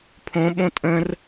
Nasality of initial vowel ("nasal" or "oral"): nasal